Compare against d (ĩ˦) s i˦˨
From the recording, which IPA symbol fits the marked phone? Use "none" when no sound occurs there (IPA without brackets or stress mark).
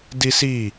i˦